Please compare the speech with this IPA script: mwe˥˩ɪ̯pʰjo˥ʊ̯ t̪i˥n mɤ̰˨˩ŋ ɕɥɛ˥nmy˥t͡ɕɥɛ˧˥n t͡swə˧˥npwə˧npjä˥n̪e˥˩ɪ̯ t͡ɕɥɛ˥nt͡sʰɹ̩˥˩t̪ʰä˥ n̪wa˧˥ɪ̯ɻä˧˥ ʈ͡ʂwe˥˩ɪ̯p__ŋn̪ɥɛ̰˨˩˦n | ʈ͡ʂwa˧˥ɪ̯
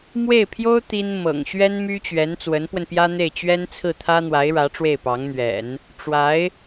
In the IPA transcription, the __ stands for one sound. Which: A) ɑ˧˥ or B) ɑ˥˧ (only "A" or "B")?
A